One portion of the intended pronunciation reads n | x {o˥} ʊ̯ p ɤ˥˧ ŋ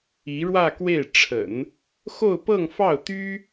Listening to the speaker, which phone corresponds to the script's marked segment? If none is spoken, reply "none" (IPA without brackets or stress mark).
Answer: o˥˧